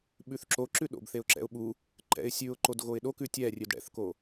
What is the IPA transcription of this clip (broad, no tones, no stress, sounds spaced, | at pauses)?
ɓ ʉ θ ǁ o ǁ ʉ ɗ o̰ b θ e ʊ̯ ǁ ɛ̰ ʊ̯ ɓ u | ǃ ɛ̰ ɪ̯ sʲ ʉ ʊ̯ ǃ o d ɣ o ɪ̯ ɗ o k ʉ tʲ ɛ rʲ ʉ d ɽ ɛ̰ θ k o